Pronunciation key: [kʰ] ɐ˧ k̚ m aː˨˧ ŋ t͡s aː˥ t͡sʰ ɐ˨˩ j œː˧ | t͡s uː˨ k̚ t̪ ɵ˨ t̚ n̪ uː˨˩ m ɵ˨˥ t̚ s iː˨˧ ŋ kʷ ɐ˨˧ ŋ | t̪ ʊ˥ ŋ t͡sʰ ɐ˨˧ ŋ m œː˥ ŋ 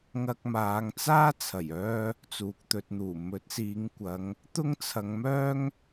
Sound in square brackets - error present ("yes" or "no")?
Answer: yes